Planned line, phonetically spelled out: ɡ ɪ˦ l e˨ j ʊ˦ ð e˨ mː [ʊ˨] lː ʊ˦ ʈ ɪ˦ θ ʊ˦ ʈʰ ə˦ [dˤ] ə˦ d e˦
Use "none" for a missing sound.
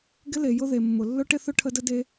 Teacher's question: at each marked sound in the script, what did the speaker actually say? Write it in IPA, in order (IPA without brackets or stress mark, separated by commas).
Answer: ʊ˨, d